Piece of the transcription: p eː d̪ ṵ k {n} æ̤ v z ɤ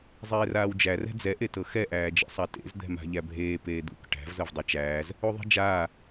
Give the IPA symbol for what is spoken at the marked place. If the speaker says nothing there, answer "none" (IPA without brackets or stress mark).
ʈ